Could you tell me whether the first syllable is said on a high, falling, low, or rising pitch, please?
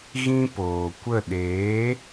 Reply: high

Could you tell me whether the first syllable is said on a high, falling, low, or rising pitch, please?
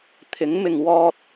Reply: rising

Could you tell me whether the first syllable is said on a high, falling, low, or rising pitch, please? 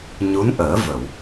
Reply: rising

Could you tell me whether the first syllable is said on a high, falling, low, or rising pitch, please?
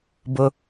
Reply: low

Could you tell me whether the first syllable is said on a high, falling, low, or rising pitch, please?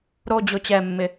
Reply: high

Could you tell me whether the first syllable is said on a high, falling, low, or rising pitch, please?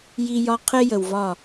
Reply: high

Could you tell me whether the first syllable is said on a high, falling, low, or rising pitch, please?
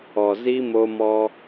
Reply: low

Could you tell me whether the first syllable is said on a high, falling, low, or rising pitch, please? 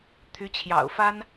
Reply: rising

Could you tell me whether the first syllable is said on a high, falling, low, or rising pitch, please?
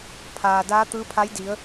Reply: low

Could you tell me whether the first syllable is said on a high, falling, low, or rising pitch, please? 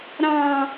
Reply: high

